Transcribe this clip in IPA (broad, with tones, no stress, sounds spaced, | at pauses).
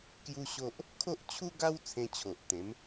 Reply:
k j u˦ ɕ o˦ ʔ | kʰ o˦ ʔ t͡ɕʰ u˦ ɡ a˦ w t͡sʰ ẽ˧ t͡ɕʰ o˨ ʔ t̪ ẽ˨˦ m